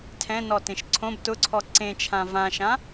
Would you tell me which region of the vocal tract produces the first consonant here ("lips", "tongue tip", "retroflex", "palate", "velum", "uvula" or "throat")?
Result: tongue tip